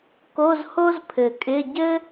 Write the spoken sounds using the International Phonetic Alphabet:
k o˧˥˧ z h o˥ z pʰ ɘ˨˩ kʼ ɪ˧˥˧ ɟ ɘ˥

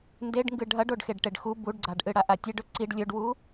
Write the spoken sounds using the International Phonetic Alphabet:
n d e ɖ ŋ ɡ ɨ ɖʱ ɐ ɖ o ɖ x e ɖ ʈ e ɖ x u b u ɖ ɡ͡ǀ a ɖ ʔ ɨ ɽ a ʔ a tʲ e ɖ ɵ ǀ i ɖ lʲ ɵ ɖ w u

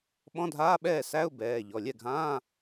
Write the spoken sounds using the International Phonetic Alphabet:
ɓ ɔ̃˧˥˧ dʱ aː˧˥˧ ɓ ɛː˥˩ s æ˧˥˧ ʊ̯ b ɛː˩˧˩ ʎ ɔ˩˧˩ lʲ ɛ˥˩ ɡʱ ãː˧˥˧

